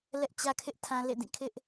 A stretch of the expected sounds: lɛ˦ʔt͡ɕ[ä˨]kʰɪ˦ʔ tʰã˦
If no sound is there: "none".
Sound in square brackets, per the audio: ä˦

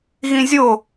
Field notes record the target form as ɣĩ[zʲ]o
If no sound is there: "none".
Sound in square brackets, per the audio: zʲ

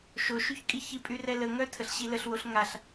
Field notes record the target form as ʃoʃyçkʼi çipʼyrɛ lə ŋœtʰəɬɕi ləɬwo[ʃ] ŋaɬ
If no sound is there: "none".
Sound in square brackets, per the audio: ɬ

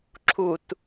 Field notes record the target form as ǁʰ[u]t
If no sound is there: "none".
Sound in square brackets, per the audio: u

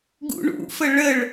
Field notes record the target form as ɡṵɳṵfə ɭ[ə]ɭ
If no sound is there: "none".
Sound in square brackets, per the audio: ə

